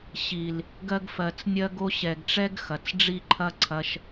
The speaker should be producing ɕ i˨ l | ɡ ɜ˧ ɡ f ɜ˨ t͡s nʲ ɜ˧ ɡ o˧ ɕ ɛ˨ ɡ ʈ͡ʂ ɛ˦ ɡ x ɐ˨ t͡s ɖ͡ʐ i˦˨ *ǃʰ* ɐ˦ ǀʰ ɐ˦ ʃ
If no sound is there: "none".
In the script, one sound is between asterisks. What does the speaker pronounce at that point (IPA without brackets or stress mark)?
ǃʰ